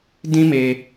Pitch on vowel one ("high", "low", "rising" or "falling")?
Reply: high